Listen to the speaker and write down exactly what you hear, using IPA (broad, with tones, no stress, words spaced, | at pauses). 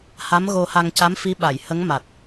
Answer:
ha˧˥mɣo˧ ha˧ŋca˧˥mfi˧˥ ɓa˨˩˨jhə˧˥ŋma˨˩t̚